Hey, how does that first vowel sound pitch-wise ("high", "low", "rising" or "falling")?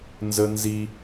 high